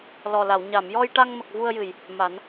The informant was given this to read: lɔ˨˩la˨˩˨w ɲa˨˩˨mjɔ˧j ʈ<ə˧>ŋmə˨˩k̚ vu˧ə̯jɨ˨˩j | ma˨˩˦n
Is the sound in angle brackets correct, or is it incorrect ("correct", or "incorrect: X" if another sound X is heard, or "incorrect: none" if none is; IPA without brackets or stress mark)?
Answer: incorrect: a˧